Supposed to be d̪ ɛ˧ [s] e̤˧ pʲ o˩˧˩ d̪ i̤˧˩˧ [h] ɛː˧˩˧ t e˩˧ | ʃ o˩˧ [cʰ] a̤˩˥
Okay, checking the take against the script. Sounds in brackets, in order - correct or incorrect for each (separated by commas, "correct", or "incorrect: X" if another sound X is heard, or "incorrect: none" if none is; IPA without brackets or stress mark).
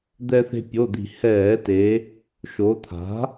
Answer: incorrect: θ, correct, incorrect: t̪ʰ